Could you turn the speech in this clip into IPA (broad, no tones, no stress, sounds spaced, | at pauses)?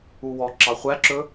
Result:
u w ɔ ǁ ɑ χʷ æ ǁ ɵ